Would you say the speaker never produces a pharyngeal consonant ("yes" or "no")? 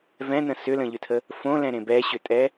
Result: yes